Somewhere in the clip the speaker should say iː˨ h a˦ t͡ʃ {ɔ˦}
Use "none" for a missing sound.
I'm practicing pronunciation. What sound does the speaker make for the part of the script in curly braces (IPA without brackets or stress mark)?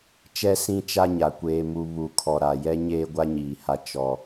ɔ˦